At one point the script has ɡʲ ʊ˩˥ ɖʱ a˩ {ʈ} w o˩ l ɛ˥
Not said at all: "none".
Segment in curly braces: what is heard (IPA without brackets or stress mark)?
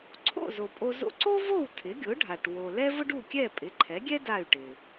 ʈ